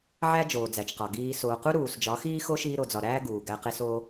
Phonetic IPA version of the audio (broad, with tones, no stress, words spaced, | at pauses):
ʕæ˦d͡ʒoː˨d͡zæ˨t͡ʃqɒ˨ ɡiː˧ soː˨qu˦ ɾuː˨sd͡ʒɒ˨˦xiː˦xo˦ ʃiː˦ɾo˧d͡zɒ˧ ɾæː˦ɡuː˨ ɡæ˧ qe˧ soː˦